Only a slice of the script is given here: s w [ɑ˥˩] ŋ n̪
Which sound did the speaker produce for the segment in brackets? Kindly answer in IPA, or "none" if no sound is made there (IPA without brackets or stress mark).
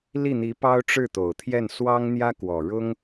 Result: ɑ˥